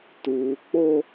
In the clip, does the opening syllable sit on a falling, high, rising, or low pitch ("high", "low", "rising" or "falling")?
low